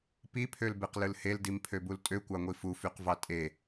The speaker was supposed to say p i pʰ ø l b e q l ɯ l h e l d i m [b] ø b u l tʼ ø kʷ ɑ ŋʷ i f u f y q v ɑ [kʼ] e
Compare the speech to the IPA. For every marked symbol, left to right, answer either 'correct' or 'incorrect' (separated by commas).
incorrect, incorrect